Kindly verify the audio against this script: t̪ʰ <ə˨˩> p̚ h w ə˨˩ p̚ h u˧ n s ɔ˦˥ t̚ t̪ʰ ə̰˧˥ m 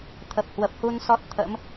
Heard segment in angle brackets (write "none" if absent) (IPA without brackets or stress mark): ə˨˩